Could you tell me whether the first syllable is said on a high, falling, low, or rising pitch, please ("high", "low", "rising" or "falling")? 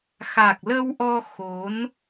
low